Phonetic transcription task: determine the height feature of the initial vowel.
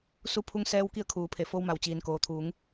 high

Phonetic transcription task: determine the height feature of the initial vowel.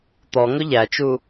mid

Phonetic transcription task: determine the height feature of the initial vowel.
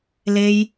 mid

